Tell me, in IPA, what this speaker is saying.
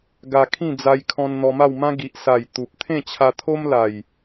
ɡ a˧ kʰ ĩ˥˧ d͡z a˧ j kʰ ɔ̃˧ n n̪ ɔ˧ m a˥˧ w m ã˦ ɡ i˨ ʔ s a˨˩ j t̪ u˨ p̚ t̪ʰ ẽ˥˧ t͡ɕʰ a˧ t̪ʰ o˦ m l a˨˩ j

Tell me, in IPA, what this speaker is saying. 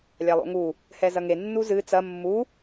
lʲ a lˠ o̰ ŋ u | h ɛ z ɐ ŋ e nː u z ɨ t͡s ɐ mː u

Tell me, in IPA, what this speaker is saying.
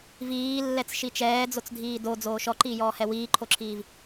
v iː lː ɛ t͡s ʃ i t͡ʃ ɛː d͡z o t͡s dʱ iː d o d͡z oː ʃ ɔ ǃ iː j ɔː h ɛ w iː ǃʰ o ǁʰ iː v

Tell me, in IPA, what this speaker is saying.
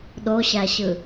ɗ o ɕ æ ɕ ɯ

